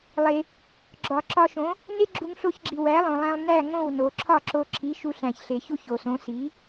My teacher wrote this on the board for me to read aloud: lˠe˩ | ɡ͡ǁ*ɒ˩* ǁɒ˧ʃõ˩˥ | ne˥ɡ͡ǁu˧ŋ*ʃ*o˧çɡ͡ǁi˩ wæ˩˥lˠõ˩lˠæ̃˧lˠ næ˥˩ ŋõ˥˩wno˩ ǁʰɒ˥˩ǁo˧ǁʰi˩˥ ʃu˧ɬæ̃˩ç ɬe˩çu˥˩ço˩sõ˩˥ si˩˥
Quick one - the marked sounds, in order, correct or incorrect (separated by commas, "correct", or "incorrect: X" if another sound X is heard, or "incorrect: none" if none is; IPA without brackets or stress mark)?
correct, incorrect: ɬ